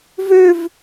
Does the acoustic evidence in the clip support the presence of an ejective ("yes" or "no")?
no